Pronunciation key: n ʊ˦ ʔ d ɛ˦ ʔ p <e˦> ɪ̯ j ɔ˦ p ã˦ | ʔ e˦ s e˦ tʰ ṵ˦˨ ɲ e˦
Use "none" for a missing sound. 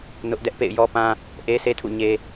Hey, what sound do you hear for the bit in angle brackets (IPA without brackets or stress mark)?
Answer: ḛ˦˨